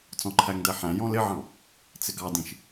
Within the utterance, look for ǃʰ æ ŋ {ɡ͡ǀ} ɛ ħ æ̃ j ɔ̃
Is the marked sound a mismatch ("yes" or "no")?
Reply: yes